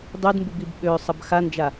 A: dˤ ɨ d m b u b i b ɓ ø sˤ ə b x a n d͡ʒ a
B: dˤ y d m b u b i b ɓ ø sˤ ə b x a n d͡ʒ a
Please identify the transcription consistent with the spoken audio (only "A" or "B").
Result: B